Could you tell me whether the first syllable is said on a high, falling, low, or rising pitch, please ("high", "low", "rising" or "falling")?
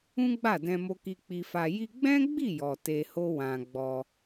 high